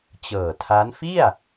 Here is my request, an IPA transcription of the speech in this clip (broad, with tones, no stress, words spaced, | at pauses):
t͡ɕɤː˨˩tʰa˦˥n fi˥˩a̯